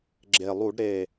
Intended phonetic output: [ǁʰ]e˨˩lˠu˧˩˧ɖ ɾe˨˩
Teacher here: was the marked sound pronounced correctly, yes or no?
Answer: no